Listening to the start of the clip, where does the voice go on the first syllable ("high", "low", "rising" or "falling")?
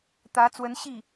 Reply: rising